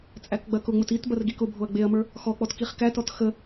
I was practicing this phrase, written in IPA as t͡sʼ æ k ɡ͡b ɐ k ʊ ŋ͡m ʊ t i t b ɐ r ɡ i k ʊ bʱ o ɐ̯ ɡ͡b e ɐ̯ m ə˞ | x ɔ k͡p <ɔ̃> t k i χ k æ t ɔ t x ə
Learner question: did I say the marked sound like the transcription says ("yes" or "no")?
no